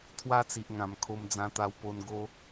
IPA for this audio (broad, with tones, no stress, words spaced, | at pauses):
t̪ʰwa˦t͡si˨ʔŋã˨˩mkʰo˧m d͡zã˧t̪a˧w po˧nɡo˦